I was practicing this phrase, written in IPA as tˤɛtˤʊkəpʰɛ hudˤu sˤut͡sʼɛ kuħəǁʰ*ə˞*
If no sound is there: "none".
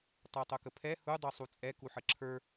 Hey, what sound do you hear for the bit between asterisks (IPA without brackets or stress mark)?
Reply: ə˞